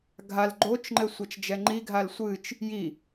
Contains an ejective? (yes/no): no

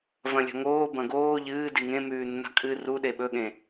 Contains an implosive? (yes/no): yes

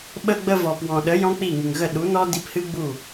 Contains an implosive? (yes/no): yes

